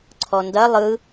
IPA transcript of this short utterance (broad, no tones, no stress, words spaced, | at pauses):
ǀʰɔndɐ lˠɯ